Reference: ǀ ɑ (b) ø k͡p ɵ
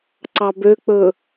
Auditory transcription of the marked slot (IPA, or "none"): b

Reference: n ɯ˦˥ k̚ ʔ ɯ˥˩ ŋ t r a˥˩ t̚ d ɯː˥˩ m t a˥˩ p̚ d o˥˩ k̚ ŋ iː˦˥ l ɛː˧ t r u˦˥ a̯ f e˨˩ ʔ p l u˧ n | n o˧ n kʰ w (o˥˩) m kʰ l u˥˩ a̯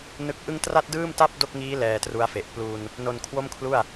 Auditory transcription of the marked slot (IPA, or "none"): o˥˩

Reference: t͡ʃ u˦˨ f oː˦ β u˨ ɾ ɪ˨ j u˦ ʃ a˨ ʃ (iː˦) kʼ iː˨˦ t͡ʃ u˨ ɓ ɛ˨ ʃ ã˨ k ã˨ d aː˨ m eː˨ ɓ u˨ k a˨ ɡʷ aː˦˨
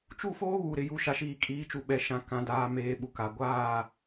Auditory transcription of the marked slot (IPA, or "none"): iː˨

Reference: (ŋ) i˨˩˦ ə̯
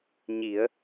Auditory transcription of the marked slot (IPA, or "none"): ɲ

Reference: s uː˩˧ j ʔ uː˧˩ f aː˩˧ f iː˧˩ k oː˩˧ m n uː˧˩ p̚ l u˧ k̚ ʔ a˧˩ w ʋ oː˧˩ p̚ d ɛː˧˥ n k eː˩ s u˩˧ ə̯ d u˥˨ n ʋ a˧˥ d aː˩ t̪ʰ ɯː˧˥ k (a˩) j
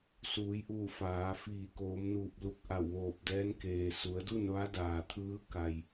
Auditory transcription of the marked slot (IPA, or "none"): a˩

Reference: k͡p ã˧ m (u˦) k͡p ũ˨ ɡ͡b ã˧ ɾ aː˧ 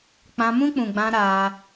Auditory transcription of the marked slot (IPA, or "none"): ũ˦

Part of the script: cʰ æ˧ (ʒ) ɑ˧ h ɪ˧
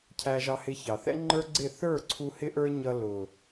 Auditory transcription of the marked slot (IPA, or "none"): ʒ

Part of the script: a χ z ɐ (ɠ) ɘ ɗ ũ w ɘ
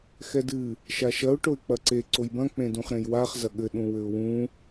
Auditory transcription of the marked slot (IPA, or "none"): ɠ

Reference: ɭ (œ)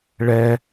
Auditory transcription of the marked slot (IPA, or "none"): ɛ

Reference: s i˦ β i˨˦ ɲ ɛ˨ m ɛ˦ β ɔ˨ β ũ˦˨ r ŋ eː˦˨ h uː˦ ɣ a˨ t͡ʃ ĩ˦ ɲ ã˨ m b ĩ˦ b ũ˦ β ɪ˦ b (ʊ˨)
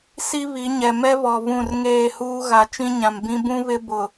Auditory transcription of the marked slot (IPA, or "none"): ʊ˨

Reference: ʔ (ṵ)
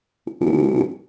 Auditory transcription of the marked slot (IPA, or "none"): ṵ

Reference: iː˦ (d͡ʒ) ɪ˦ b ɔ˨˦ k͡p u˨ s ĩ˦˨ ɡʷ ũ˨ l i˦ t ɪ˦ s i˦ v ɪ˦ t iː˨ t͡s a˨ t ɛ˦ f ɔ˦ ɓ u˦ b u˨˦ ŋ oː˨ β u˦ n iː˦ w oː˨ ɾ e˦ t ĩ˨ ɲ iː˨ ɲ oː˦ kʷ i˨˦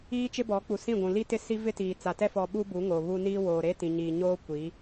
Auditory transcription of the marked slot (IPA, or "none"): t͡ʃ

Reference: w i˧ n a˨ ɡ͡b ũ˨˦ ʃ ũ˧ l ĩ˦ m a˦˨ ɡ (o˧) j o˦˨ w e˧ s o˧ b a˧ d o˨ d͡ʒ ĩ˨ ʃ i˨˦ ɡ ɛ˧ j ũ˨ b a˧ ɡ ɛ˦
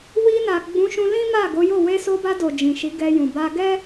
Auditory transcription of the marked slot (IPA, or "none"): o˨˦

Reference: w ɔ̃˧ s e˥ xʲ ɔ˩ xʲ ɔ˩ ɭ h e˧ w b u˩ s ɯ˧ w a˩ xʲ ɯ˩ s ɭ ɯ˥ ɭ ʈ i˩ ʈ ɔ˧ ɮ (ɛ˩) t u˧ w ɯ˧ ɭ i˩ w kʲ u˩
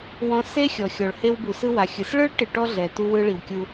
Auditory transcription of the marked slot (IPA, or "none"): ɛ˩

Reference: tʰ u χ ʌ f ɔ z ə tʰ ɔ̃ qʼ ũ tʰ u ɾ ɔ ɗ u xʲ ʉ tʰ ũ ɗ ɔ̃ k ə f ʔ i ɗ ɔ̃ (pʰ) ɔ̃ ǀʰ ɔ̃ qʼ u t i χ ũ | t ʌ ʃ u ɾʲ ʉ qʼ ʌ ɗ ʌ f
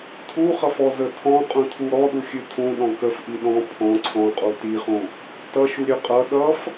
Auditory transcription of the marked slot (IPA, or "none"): pʰ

